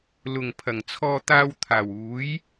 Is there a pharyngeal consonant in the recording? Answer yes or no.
no